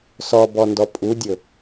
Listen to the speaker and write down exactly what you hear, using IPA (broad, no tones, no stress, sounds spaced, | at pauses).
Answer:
s ɔ b ɔ n d ɔ pʼ u dʲ ɵ